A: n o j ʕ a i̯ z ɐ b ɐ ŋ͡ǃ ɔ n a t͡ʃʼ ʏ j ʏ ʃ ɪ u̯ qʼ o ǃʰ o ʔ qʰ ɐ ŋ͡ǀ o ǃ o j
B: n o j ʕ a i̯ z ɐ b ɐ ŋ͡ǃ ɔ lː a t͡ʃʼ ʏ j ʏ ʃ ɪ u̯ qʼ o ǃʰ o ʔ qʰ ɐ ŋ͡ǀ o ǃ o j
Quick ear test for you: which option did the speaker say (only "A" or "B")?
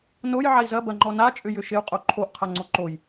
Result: A